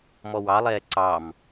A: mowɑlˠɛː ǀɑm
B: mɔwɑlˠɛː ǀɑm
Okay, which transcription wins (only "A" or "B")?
B